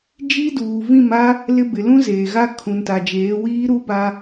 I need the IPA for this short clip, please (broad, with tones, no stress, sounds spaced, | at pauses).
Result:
d͡ʒ i˦ d uː˨ v ĩ˦˨ m a˦ | l ɪ˦ b ɪ˨ l ũ˦ z eː˨ ɣ a˦ kʰ ũ˨ n t a˨ d͡ʒ eː˨˦ w iː˦ ɾ u˦ b a˦